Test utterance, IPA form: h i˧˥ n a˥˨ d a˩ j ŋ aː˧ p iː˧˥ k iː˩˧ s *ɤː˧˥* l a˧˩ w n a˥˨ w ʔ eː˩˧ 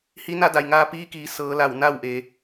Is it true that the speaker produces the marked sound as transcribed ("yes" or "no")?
no